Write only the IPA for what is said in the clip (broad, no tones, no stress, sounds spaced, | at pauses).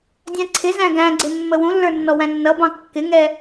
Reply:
dʲ æ̃ ǀʰ ɪ z æ̃ ɡ æ̃ ɡ͡ǀ ɪ mː ə w ũ lː ə˞ nː ɔ w æ̃ nː ʌ b ɑ̃ kː ɪ ŋ ɛ